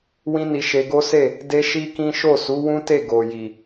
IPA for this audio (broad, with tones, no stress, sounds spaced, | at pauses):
w ĩ˦ n i˧ ʃ e˧ ɡ o˦ s e˦˨ | d e˦ ʃ i˦ k ĩ˦ ʃ o˦˨ s u˨˦ w ũ˦ t e˦˨ ɡ o˨ j i˨